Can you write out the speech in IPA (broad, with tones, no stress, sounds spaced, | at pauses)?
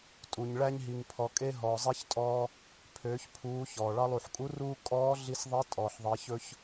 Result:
tʼ u˩ ɲ ɭ æ˧ ɲ ɦ i˩ ŋ pʰ ɔ˩ kʼ e˧ ɦ ɔː˩ zˤ i˧˥ ç tʼ ɔː˧ | pʰ øː˩˧ ç pʰ uː˩˧ ç ɔː˩ ɭ ɑ˧ lˠ u˩ ħ kʼ u˧˥ r uː˥ kʼ ɔː˧˥ ɮ i˧ s ðˤ e˧˥ tʼ ɔ˩ ħ ðˤ e˩˧ ç ɵ˧ ç